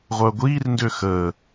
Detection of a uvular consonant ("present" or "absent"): present